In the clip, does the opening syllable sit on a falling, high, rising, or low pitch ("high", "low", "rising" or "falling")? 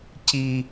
high